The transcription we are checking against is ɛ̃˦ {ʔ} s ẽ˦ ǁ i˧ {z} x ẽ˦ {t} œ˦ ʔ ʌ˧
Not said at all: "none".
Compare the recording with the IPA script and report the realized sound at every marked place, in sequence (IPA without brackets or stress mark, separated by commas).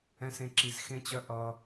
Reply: none, z, t͡ɕ